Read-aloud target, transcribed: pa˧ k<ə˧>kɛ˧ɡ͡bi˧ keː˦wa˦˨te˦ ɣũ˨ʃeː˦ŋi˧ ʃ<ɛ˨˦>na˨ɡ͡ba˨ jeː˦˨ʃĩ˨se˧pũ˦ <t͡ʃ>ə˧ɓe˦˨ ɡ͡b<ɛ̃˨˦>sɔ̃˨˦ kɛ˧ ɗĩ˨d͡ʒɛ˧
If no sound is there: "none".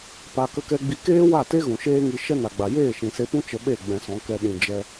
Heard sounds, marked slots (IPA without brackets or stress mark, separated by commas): ə˧, ɛ˦, t͡ʃ, ɛ̃˧